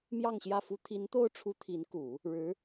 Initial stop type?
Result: aspirated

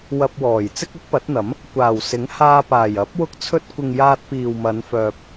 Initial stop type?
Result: plain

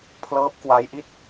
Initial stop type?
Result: aspirated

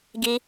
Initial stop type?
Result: plain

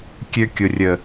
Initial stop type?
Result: plain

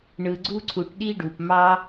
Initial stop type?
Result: click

